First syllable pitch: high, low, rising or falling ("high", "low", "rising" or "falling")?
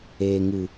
low